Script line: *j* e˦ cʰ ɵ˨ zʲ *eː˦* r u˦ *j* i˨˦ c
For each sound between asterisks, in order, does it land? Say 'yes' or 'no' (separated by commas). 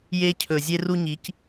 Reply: yes, no, no